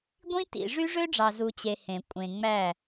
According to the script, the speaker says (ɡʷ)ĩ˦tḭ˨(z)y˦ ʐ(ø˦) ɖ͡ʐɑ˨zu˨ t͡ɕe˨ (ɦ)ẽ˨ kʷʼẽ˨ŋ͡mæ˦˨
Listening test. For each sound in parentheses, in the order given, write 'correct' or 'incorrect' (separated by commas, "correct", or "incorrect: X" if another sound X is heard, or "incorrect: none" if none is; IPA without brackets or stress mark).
correct, incorrect: ʐ, correct, incorrect: h